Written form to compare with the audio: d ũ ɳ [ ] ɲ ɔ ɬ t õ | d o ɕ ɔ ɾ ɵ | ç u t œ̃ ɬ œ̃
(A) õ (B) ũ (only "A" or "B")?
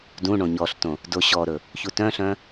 A